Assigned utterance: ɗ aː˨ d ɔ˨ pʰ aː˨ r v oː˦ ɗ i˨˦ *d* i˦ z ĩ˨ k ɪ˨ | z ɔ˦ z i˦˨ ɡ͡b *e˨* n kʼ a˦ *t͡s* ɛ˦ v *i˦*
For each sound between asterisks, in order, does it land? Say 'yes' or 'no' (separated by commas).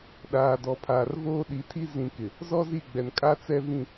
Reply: no, no, yes, no